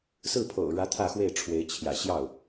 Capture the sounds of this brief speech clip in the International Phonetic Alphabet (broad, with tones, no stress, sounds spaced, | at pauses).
s ɹ̩˥˩ pʰ o̰˨˩ ʊ̯ ɻ ä˧˥ t̪ʰ ä˥˧ x w e˥˩ ɪ̯ ʈ͡ʂʰ w e˧˥ ɪ̯ t͡ɕʰ j ä̰˨˩ ɕ j ɑ˥˩ ʊ̯